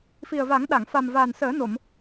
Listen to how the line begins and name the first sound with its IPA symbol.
f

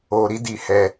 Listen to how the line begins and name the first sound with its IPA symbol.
o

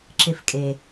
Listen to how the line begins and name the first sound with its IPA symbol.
ǁ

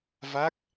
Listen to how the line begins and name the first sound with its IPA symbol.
v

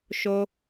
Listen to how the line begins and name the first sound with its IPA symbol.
ʃ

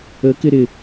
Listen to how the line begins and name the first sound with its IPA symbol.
ə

